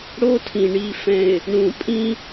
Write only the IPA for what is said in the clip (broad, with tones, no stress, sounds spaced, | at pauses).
ɽ o˦ tʰ ĩ˨ ɳ i˨ f ɛ̃˨ ɪ̯ | ɳ ũ˨ pʼ ĩ˦